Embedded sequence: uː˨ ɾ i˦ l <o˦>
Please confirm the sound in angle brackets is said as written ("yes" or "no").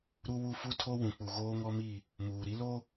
yes